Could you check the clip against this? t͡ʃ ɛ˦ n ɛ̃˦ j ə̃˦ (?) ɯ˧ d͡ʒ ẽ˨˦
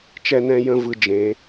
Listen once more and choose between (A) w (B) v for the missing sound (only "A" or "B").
B